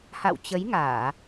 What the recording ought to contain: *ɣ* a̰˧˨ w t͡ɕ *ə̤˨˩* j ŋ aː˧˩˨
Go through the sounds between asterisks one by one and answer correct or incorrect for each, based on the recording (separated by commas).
incorrect, incorrect